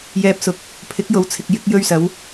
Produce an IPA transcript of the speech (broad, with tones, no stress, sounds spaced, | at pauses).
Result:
j ɛː˨ p̚ s ʊ˨˥ k̚ | pʰ ɪ˨˥ k̚ j o˨˧ w t͡sʰ ɪ˨ k̚ j ɪ˧ k̚ j ɵ˧ ɥ s ɐ˨˧ w